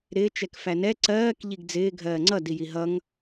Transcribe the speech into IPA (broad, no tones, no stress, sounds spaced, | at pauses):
ɾ ɪː t͡ʃ ɛ k f æ n ɛ ǀ ɜː k ʎ i ɡ d͡z ɪː ɡʱ ɜː ŋ͡ǀ ʌ d i j i ɦ ʌ ŋ